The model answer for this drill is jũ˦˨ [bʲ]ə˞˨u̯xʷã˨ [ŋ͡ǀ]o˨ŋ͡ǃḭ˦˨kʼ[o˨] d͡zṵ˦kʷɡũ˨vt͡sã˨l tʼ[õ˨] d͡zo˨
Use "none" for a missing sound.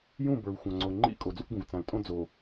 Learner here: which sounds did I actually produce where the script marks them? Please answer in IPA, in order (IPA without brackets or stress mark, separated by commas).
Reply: b, ŋ͡ǀ, o˨, õ˦